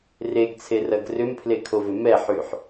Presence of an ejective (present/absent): absent